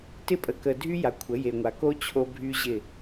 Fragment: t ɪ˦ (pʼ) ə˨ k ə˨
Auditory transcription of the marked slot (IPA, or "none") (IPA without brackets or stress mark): pʼ